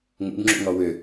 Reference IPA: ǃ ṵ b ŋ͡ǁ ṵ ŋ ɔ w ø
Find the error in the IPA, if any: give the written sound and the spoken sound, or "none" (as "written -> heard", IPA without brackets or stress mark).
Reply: ǃ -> ŋ